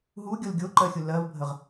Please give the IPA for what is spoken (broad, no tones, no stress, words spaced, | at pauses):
ɦuɡʲol ɡʲoǃɜxʲu lɜvbʱəʁ